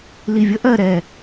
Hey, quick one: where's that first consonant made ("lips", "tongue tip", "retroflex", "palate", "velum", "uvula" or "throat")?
tongue tip